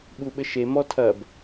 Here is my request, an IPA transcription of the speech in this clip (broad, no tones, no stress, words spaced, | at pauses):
ɓuɓɘʃe mɔtʰɐb